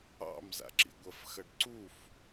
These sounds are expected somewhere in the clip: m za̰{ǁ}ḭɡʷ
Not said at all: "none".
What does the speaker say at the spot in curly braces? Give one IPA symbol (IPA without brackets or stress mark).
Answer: ǁ